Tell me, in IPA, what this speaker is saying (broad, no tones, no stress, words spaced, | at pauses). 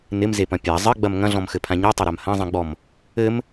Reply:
nɪmzepɐ̃ pʲa zˤɘɡ͡bɐm ŋɐ̃ɮɔ̃mxɘpʰã ɲetˤɐɾam hɐ̃zˤĩɡ͡bɔm | ɘm